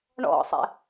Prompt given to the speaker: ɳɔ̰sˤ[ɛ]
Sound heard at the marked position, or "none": ɛ̰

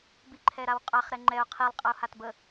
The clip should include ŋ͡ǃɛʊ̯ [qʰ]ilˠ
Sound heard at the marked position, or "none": qʰ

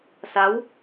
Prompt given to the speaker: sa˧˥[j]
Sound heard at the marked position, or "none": w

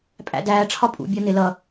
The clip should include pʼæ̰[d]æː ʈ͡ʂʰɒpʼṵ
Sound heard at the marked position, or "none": d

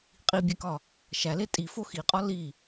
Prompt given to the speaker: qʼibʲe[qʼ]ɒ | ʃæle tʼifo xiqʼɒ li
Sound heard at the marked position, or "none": k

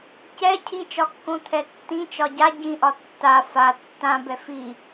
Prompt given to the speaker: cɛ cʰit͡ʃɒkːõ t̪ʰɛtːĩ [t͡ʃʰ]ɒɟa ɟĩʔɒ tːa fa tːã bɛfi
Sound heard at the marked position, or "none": t͡ʃ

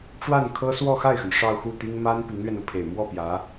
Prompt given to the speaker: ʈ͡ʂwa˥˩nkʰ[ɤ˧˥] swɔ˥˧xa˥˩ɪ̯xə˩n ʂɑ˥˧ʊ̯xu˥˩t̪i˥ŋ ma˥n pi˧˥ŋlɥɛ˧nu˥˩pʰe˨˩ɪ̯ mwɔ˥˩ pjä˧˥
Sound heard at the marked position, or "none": ɤ˥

